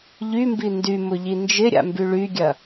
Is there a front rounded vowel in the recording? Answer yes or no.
yes